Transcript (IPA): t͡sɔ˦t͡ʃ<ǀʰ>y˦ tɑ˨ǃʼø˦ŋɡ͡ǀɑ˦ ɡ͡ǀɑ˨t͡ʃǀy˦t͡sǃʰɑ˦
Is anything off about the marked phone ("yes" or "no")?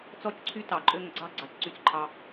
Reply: no